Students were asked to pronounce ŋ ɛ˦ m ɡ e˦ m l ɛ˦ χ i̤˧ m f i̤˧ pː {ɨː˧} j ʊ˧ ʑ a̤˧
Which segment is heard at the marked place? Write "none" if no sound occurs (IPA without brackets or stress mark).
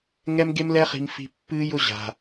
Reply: ɨː˧